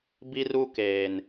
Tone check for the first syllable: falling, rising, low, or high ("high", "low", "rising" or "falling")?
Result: high